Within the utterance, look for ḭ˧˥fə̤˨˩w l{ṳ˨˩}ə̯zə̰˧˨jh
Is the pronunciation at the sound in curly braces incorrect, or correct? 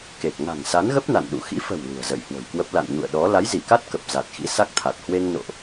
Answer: correct